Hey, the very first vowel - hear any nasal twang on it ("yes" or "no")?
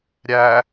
no